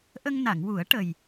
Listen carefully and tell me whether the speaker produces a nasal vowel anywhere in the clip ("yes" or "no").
no